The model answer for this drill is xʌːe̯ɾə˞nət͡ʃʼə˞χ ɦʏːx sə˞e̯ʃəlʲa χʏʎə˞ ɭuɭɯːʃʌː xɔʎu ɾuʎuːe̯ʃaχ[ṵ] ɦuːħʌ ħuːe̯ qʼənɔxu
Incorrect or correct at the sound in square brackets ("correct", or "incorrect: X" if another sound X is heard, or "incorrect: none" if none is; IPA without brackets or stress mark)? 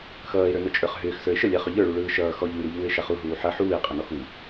incorrect: u